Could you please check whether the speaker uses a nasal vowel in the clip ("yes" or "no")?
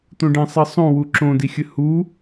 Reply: yes